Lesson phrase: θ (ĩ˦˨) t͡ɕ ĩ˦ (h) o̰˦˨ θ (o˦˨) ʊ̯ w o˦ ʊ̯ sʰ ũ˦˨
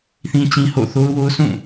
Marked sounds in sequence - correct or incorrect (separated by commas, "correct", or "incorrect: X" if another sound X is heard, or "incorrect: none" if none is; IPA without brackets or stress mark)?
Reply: incorrect: ĩ˦, correct, incorrect: o˦